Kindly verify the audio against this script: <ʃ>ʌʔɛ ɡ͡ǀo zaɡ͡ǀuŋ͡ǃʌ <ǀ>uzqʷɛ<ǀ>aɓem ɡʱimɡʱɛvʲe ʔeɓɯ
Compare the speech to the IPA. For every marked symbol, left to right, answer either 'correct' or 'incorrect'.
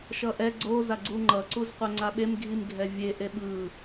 correct, correct, incorrect

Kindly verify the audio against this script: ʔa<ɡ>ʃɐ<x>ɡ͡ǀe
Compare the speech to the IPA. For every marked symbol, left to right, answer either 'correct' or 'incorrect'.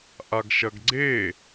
correct, incorrect

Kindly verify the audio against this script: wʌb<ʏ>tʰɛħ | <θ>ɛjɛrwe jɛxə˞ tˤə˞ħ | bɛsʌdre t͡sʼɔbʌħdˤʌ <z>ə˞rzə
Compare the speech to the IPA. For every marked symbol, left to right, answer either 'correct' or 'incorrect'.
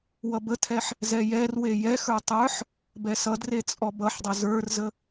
incorrect, incorrect, correct

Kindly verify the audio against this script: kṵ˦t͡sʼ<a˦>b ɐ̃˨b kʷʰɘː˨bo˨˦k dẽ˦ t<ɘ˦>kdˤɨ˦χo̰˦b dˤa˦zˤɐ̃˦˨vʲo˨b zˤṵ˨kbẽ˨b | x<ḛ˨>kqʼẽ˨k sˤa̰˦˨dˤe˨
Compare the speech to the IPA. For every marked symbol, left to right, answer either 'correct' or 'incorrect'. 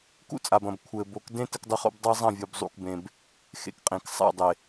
incorrect, correct, correct

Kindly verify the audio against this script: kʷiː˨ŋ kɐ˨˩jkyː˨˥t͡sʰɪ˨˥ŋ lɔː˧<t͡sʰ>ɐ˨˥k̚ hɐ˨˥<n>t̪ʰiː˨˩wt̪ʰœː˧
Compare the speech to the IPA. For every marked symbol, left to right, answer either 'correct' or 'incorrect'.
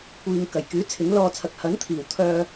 correct, correct

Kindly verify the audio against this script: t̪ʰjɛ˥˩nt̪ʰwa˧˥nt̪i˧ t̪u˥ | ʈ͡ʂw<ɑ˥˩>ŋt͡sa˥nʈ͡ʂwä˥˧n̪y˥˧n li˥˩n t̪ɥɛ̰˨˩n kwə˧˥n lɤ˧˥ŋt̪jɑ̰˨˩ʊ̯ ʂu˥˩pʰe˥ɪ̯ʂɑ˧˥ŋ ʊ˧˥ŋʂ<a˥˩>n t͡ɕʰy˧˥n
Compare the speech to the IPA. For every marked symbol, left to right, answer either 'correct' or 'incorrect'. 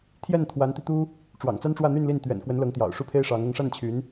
incorrect, correct

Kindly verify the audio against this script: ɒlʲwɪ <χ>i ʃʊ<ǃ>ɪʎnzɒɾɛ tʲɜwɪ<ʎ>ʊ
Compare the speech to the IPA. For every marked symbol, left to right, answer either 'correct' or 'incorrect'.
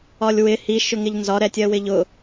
incorrect, incorrect, correct

